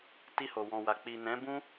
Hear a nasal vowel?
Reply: yes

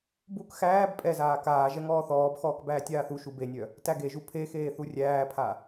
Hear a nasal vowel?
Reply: no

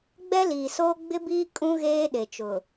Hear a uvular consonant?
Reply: no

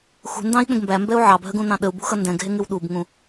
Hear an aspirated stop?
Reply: no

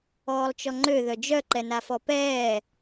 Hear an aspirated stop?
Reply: no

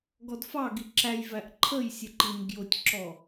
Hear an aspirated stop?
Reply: yes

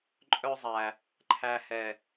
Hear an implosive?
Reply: no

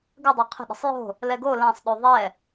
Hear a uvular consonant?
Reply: yes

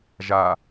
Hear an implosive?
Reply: no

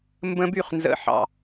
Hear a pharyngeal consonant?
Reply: yes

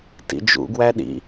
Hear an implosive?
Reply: yes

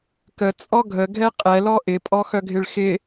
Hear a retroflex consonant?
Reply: yes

